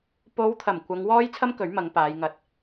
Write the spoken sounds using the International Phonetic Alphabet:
p o˨˧ w t̪ʰ ɐ˨˩ m kʷ ɐ˨˧ ŋ w ɔː˥ j t͡sʰ ɐ˥ m k ɵ˨˥ ɥ m ɐ˨˧ ŋ p aː˨˧ j ŋ ɐ˧ t̚

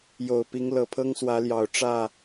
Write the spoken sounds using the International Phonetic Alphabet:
j o˨˩ ʊ̯ p i˨˦ ŋ l ɤ˨˩ pʰ ɤ˦ ŋ s w ä˨˦ l j ɑ˨˩ ʊ̯ ʈ͡ʂ ä˥˨

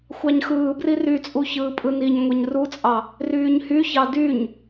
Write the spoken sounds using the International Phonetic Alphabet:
xʷ ɑ ɲ x ɯː b r i r y t͡sʼ u ç ɯː pʼ ɯ n i ɲ ŋʷ e ɲ r u t͡sʼ ɑ | r yː ɲ h y ç ɑ d y ɲ

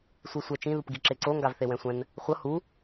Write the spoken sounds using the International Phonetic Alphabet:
sʷ i sʷ ɛ t͡ʃ ĩ ð u p ɡ i ǁ e ǀ o ŋ ɡ a v θ e w ɛ̃ sʷ ɛ̃ n | χʷ ʌ h u

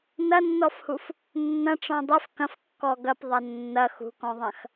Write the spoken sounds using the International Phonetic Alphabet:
n ɐ nː ɔ f h u f | nː ɐ̃ ʈ͡ʂ ɔ̃ dˤ ɛ f k ɐ̃ f kː ɔ ɡ ɐ p ðˤ ɐ nː ɐ x ṳ k ɔ̃ ðˤ ɐ̃ x

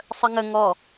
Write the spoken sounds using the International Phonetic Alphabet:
sˤ ə ŋ ə ŋ ɔ

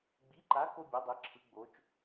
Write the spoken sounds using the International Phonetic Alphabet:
ɡ͡b i˨˦ ǃ a˨˦ k o˦ bʲ ɔ˨˦ dˤ e˨˦ ǁʰ ɯ˨˦ ɡ͡b o˨˦ t͡ʃ

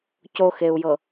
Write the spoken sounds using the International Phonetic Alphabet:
c o x e u̯ j ɤ

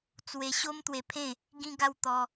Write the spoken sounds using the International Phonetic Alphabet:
t͡s w e˧ ɕ o˦ m t̪ w e˧ pʰ ẽ˥˧ | ɡ ĩ˧ ɡ a˧ w t̪ ɔ˧

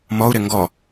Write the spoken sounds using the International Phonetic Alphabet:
m ɔ u̯ ɾ ɪ ŋ ɡ ɔ

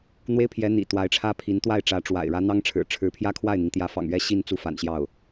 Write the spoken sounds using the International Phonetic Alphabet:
n̪ w e˥ ɪ̯ pʰ j ɛ˧˥ n̪ ḭ˨˩ t̪ w a˧˥ ɪ̯ ʈ͡ʂʰ ä˥ pʰ i˧˥ n t̪ w a˥˩ ɪ̯ ʈ͡ʂ ä˧˥ ʈ͡ʂ w a̰˨˩ ɪ̯ ɻ ä˧˥ n̪ ɑ˥ ŋ ʈ͡ʂʰ ɻ̩˨˩ ʈ͡ʂʰ ɻ̩˧˥ pʰ j ä˥ kʰ w a˥˩ ɪ̯ n̪ i˩ ŋ t̪ j ä˧˥ f ɑ̰˨˩ ŋ ɥ ɛ˥ ɕ i˥˧ n t͡s u˥˩ f a̰˨˩ n ɕ j ɑ˥˩ ʊ̯

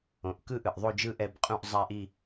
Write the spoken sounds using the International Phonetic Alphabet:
õ˩ ʔ k ɯ˥˧ ʔ ɯ˩ ʔ ðˤ o˥˧ d͡ʒ ɯ˥˧ ʔ ɛ˨˦ b qʼ ũ˥˧ ʔ zˤ a˥˧ ʔ i˥˧

